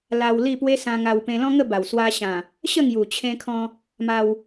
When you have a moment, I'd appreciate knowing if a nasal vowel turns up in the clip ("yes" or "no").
yes